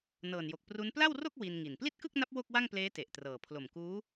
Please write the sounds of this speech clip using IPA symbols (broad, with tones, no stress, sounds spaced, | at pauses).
n ɤː˨˩ n j o˨˩ k̚ p r u˦˥ n p l a˥˩ w r o˥˩ k̚ w i˧ n ŋ i˨˩ n p l i˥˩ t̚ k ɯ˥˩ k̚ n a˦˥ p̚ w o˥˩ k̚ w a˥˩ ŋ p l eː˦˥ t e˨˩ ʔ t r ɤː˨˩ pʰ l o˨˩ m k uː˦˥